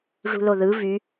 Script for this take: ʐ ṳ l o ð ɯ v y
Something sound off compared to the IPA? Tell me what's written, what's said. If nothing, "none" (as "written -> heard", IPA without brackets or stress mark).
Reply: none